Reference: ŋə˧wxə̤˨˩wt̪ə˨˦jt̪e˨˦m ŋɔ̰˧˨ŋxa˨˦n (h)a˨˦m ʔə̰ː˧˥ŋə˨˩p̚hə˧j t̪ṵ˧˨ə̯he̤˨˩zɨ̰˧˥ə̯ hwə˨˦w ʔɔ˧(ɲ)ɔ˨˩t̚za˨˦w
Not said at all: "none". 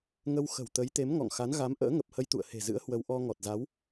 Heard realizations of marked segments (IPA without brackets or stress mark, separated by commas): ɣ, ŋ